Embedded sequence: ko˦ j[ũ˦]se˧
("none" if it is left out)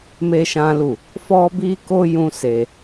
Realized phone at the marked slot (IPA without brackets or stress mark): ũ˦